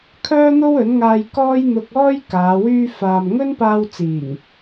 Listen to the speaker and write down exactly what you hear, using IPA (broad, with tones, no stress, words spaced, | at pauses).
kʰœː˥n̪o˥wɵ˨˥nŋaː˧j kɔː˥jn̪ʊ˧k̚ɔː˥j kaː˨˧ wyː˧faː˨m ŋɵ˥npaː˧wt͡siː˨˩ŋ